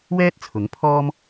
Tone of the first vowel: high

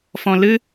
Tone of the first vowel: low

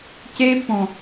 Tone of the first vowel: high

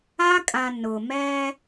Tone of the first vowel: high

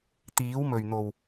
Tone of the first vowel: rising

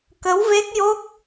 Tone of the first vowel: rising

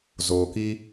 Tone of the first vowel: low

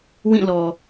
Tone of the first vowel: falling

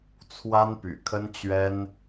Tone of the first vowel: high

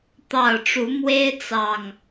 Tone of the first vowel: low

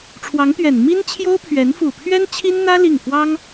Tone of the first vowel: rising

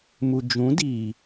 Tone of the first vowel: low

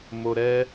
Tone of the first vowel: low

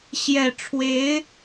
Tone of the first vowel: low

